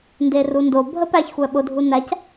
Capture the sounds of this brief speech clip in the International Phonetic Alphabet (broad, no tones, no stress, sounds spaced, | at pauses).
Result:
n d e r u n d o bʱ ə p æ ç xʷ æ ɓ ʊ dʱ u n æ c